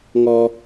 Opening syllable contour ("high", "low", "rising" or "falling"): high